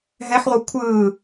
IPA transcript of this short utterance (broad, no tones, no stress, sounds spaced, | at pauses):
ɦ ɛ ħ ʁʷ ʌ kʷʰ ɯː